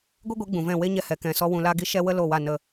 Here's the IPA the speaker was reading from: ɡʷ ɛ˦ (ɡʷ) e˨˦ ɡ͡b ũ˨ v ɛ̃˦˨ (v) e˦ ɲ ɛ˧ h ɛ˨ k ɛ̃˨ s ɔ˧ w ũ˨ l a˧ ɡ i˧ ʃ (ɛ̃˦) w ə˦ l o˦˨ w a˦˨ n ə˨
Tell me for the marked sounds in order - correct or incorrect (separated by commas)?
correct, incorrect, incorrect